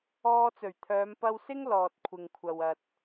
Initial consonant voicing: voiceless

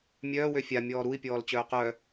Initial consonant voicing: voiced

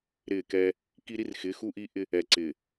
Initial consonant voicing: voiced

